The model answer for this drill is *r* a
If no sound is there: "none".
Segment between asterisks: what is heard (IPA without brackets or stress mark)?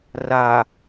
r